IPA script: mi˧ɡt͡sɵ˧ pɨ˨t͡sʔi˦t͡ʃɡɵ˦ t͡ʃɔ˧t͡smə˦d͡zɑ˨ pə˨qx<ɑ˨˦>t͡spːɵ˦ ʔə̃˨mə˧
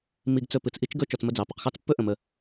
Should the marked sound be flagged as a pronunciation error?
yes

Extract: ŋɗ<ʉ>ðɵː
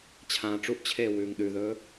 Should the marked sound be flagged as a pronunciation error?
no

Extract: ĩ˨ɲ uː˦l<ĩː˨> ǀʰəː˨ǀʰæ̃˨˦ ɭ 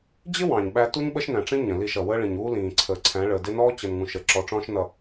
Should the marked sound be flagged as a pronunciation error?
no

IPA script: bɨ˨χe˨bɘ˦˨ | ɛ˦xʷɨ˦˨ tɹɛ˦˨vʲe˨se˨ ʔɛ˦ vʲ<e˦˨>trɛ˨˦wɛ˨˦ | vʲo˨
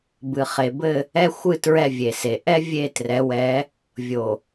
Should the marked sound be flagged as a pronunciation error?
no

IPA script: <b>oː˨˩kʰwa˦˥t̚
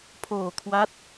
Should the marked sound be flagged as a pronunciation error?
yes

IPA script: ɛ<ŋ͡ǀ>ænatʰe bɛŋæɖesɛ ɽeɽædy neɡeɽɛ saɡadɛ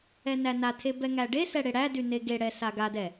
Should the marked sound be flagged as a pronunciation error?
yes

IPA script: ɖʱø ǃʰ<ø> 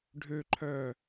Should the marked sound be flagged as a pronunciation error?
yes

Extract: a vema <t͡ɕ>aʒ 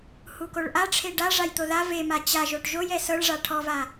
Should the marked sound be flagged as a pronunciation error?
no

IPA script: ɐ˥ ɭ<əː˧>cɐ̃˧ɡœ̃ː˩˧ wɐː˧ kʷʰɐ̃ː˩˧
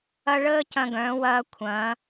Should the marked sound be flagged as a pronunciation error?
yes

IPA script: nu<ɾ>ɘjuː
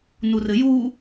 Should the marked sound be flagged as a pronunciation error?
yes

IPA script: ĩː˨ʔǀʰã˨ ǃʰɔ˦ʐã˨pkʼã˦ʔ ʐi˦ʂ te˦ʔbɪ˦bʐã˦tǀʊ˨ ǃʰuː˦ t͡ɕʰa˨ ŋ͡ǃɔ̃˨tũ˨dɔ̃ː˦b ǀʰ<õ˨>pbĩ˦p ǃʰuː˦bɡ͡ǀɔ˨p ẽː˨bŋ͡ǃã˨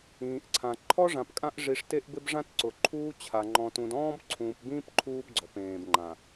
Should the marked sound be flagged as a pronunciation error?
yes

